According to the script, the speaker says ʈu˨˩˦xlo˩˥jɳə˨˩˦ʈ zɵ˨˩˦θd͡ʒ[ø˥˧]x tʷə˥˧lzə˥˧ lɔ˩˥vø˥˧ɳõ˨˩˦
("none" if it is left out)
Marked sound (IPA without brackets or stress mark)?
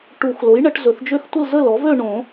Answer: ø˥˧